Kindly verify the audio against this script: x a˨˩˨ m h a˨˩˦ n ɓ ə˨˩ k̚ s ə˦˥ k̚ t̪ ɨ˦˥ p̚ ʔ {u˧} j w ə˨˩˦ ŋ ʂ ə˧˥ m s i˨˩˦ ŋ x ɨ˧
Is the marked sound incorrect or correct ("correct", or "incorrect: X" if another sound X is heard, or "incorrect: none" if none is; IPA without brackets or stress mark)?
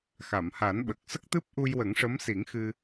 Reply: correct